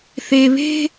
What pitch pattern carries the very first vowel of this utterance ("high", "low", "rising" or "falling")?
low